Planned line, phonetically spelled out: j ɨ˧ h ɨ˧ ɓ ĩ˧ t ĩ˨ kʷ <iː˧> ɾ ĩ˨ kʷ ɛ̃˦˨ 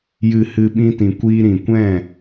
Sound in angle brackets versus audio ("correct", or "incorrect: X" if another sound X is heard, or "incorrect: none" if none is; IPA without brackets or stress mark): correct